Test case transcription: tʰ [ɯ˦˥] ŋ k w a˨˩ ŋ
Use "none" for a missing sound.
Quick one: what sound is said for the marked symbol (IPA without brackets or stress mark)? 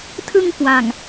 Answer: ɯ˧